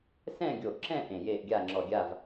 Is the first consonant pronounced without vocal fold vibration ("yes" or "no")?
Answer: yes